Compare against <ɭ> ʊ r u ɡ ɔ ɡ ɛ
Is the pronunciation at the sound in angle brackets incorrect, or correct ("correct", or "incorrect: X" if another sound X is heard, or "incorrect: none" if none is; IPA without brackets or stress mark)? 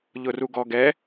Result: incorrect: ʎ